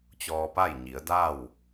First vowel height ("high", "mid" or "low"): mid